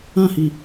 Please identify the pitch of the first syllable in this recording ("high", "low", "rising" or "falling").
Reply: falling